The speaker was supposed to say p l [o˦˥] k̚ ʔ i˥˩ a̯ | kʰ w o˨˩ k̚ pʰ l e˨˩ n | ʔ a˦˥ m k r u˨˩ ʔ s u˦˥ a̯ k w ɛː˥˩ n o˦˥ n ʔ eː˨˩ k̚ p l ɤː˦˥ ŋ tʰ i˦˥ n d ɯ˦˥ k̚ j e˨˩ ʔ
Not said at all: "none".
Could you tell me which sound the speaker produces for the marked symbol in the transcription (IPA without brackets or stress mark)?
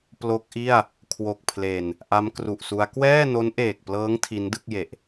o˦˥